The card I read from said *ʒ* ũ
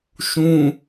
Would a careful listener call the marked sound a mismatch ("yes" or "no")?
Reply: yes